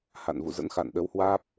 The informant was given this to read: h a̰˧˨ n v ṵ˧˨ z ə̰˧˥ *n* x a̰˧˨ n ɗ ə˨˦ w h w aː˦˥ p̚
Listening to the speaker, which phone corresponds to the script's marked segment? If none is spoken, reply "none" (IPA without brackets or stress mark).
n